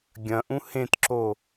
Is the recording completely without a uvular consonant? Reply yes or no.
yes